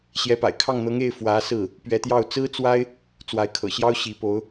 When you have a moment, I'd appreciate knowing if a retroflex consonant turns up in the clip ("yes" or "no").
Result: no